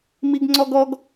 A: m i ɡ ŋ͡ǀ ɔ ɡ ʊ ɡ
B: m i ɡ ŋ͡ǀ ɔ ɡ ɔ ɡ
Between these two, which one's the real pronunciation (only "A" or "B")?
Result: B